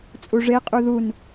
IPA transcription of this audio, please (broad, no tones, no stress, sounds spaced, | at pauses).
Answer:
t͡sʼ u ʐ e qʼ u ð u n